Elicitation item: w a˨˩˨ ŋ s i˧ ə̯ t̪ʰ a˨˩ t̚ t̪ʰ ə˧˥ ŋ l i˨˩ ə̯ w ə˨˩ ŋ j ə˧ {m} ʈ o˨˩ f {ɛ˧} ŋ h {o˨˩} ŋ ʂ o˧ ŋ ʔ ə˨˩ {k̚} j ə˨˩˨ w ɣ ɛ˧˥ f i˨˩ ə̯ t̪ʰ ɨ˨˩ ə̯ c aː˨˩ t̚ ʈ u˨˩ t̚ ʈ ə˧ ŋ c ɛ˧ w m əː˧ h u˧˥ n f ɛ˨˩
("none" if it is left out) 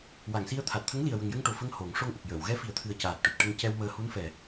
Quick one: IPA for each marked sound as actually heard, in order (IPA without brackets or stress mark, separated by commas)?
ŋ, ə˧, o˨˩˦, k̚